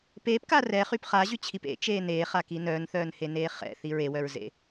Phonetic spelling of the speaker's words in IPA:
peːpka rɛχyp χaʑyt͡ɕʰip ḛt͡ʃeː neːχaki nœːnθœːnheneː χɛ̰θi ɹewœɹzḛ

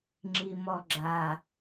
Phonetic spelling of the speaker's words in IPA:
ŋ͡ǁimɔɡ͡ǁa

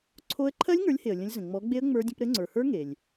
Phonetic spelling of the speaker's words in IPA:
ǀʰo˦˥ə̯ ǃʰɜ˦˥lʲŋə˞˨˦lʲhe˩ə̯ lʲə̃˨˦lʲ zə̃˩ŋ͡mɔ˨˦ɡ͡be˦˥ə̯ ŋ͡mə˞˦˥dʲə̃˦˥p ɾɘ˨˦ŋ͡ǀə˞˩hə˞˦˥ ŋe˩lʲ

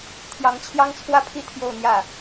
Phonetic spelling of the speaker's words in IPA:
t̪ʰjɑ˧˥ŋt͡ɕʰjɑ˥ŋt͡sʰwä˥pʰi˥˧ t̪ʰjo˥˧ʊ̯n̪jä˥˩

